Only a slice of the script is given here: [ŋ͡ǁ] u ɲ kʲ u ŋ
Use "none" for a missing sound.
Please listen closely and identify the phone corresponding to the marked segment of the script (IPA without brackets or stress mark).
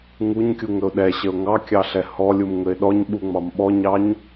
ŋ